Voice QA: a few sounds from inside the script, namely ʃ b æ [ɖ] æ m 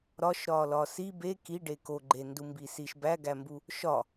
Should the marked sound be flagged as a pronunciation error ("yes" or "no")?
yes